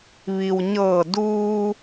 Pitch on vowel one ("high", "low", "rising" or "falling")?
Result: low